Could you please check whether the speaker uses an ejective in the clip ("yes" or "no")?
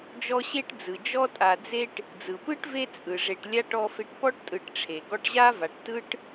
yes